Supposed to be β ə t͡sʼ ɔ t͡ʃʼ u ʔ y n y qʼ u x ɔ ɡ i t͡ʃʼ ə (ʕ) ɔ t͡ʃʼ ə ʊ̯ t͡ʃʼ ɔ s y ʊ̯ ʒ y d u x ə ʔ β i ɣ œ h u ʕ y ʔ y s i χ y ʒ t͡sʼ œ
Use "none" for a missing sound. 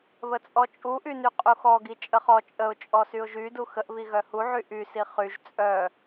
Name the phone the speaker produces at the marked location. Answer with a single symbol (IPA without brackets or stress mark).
χ